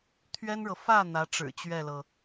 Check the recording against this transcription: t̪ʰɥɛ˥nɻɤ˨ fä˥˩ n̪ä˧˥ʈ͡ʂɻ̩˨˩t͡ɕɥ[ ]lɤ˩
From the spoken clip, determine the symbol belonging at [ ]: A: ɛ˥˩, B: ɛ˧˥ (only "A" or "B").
A